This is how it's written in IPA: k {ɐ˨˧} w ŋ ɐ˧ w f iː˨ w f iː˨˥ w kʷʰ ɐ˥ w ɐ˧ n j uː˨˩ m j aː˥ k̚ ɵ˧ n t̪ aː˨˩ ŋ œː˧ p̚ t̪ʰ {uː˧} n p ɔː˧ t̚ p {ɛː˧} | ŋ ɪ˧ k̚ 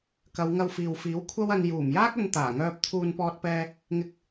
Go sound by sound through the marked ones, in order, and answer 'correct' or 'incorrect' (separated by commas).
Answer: correct, correct, correct